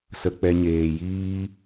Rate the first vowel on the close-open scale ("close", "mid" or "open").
mid